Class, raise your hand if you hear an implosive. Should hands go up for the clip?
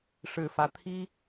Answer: no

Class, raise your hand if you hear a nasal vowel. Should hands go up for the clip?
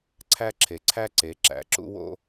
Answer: no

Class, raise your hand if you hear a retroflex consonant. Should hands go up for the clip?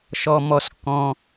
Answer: no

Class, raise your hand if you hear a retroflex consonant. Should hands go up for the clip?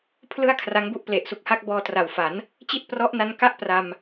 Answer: no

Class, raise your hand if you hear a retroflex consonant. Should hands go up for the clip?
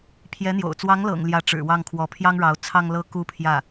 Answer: yes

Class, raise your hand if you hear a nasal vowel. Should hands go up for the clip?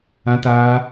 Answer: yes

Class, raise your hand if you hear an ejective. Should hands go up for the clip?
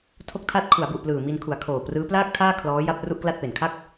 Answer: no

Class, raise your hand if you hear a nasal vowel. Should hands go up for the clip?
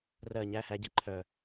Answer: no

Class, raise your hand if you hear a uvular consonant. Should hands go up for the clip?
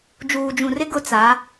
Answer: no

